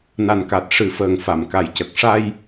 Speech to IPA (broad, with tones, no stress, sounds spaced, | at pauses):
n a˨˩ n k a˨˩ t̚ ʂ ɨ˨˩˦ f əː˨˩ ŋ f a˨˩˨ m k a˨˩ j c ə˨˩ k̚ ʂ a˧ j